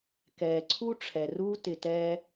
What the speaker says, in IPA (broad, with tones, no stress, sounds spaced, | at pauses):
k ɛː˨ ǀʰ u˦ ʈ͡ʂʰ ɛ˨ r uː˦ t ɪ˧ t ɛː˦